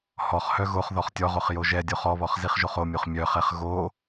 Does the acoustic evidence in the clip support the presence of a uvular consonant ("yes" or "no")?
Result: yes